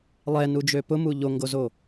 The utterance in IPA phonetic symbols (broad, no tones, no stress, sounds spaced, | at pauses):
lˠ ɛ n u d͡ʒ ø p ʊ m u ʎ o ŋ ɡ o z o